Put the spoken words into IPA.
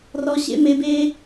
r ɔ˨ ɕ ḛ˧ m e˨ b e˧

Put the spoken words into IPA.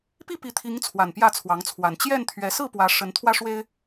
p i˥˨ p i˨˦ t̪ʰ i˨˦ ŋ t͡sʰ w a˨˩ n p j ä˥˨ t͡sʰ w ɑ˨˦ ŋ t͡sʰ w a˨˩ n t͡ɕ j ɛ˥˨ n t̪ʰ ɥ ɛ˨˦ s ɹ̩˥˨ p w ä˨˦ ʂ ə˨˦ n t̪ʰ w ä˦ ʂ w e˦ ɪ̯

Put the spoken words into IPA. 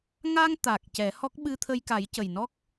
ŋ a˧ ŋ t̪ a˨˩ k̚ c ɛ˨˩˦ h ɔ˦˥ k̚ ɓ ɨ˧ t̪ʰ ə˧ j k a˨˩˦ j c ə˨˩ j n ɔ˦˥ k̚

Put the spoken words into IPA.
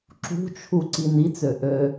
ǁ ṳ t͡ʃʰ u ǀ i n i t͡s ø ʔ ø

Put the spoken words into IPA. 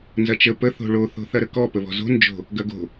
n z ɐ t͡ʃ ə p ə θ o̤ ɭ o θ o̤ θ ɐ ɾ ə k ɔ p ə β ɔ̤ z o̤ n d͡ʒ o̤ | ɡ ɐ ɡ o̤

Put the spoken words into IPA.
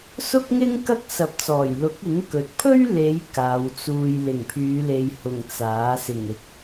s ʊ˥ k̚ ŋ ɪ˥ ŋ k ɐ˥ k̚ s ɐ˨˥ p̚ t͡s ɔː˨˩ j l ʊ˨˥ k̚ ɪ˨˥ ŋ k ɵ˨ t̚ pʰ ɵ˥ ɥ l e˨˧ j k aː˨˧ w t͡s uː˧ j l ɪ˨˩ ŋ pʰ yː˨˧ l e˨ j h ʊ˨˩ ŋ t͡s aː˨˥ s ɪ˨˩ ŋ ɪ˨ k̚

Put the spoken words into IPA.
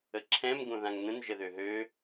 ə ǁʰ ɛ̃ m ɡ õ ð ã ŋ n ə̃ n ʒ ə ð ø ɦ ø

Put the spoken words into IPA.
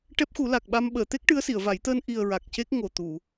ʈ ɛ˦˥ p̚ x u˨˩˦ l a˨˩ k̚ ɓ a˧ m ɓ əː˨˩˨ t̪ e˦˥ k̚ ʈ ɨ˧˥ ə̯ s i˨˩˨ ə̯ v a˨˩˦ j t̪ əː˧ n ʔ i˨˩ ə̯ ɹ a˨˩ k̚ c e˦˥ k̚ ŋ o˨˩ t̪ u˨˩˨

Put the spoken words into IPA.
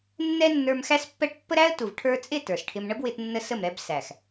nː ɛ˦ nː ə˞˧ m x æ˦ s pː ɛ˦ ʈ pː ə˦ ɾ æ˦ ə̯ t u˨ v ʈʰ ə˞˧ t͡sʼ ɪ˦˨ t ə˞˨ s ʈʰ ɪ˧ m ɳ ə˦ b w ɪ˧ t nː ə˧ s ə˦˨ m ɾ ɛ˧ b s æ˨ x

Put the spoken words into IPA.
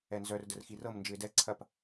ɛ n z œ r d ə r x i r ɤ m n d͡ʒ ɯ ɪ̯ d ɛ ǀʰ ɐ p

